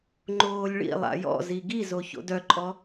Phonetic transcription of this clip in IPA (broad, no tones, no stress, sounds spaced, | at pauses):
ŋ͡ǃ oː lʲ ɭ ḭ lˠ a̰ j ɔ̰ z i ɡ i z o ç o̰ d œ ǃʼ ɔ